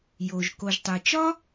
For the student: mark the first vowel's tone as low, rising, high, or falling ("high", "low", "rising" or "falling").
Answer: low